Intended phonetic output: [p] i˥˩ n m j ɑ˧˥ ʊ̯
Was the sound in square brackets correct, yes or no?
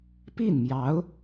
yes